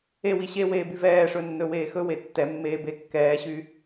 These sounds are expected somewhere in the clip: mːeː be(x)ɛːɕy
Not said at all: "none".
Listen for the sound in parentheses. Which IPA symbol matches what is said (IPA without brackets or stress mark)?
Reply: kː